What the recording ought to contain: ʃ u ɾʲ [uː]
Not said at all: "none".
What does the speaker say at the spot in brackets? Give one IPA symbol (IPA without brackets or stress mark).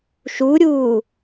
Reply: uː